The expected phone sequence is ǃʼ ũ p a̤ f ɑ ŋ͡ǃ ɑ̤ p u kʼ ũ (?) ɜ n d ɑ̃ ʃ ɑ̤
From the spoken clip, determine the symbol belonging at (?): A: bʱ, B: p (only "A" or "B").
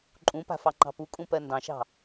B